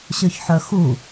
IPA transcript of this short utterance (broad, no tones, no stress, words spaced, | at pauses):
ɕøçħœxu